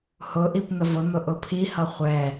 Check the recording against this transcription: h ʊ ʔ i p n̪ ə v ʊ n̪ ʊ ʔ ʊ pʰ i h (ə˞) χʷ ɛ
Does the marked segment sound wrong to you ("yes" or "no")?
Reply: yes